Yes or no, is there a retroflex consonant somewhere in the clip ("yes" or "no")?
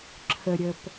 no